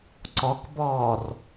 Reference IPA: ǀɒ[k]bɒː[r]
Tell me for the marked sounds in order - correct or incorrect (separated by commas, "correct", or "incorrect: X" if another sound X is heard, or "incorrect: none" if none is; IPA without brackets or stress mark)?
correct, correct